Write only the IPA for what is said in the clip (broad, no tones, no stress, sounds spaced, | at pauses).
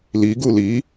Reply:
l i ɡ u l i